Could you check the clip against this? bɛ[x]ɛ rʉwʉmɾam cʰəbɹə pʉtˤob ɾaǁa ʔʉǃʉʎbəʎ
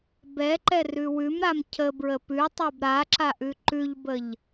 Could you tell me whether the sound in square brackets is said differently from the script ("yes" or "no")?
yes